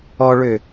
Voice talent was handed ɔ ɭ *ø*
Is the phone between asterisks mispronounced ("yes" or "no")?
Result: no